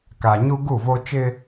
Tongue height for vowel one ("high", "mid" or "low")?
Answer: low